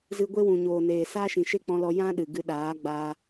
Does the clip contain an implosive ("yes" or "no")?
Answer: yes